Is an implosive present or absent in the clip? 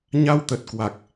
absent